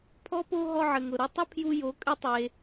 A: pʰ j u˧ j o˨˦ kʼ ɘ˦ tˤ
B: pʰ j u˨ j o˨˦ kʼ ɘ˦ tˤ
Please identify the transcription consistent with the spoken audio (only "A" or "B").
A